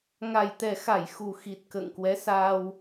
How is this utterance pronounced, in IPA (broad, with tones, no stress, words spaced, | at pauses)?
ŋa˨˩jt̪ɛ˨˩xa˧˩j xu˨˩xi˨˩t̚ kə̰ː˧˨ŋkwɛ˨˦ saː˧w